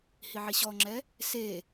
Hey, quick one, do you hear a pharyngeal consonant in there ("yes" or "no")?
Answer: yes